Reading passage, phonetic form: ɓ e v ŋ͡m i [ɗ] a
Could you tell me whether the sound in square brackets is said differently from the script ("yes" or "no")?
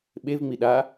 no